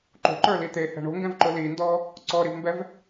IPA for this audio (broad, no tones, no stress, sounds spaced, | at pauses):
ǃ o̤ ǃ ə˞ l i t̪ e h ɛ̤ ɳ o̤ ŋ ɡ ɛ̃ v ǃ ʊ l i n d ɔ | ǀ ɔ ɾ i v m b ɛ v